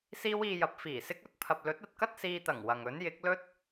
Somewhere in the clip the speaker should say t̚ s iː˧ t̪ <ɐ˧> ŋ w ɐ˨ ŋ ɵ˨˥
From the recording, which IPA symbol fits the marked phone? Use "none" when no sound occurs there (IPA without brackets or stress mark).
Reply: ɐ˨˩